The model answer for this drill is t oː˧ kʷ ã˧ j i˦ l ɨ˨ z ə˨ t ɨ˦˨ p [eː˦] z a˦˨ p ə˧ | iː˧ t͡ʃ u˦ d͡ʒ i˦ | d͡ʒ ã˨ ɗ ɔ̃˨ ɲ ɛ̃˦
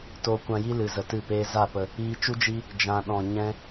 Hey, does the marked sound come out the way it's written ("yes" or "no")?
yes